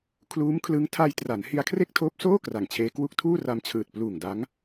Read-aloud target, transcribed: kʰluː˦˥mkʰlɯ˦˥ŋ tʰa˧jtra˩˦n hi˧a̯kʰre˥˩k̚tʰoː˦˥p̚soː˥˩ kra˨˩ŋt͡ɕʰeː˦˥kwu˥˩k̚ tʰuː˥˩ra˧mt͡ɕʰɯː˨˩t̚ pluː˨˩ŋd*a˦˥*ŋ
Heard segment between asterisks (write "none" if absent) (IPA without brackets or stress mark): a˦˥